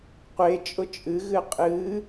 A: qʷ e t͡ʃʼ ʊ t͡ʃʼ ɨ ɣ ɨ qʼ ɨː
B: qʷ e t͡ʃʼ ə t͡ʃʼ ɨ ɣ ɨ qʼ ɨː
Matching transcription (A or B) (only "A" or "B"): A